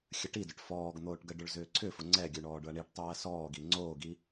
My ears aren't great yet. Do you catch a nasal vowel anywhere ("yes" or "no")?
no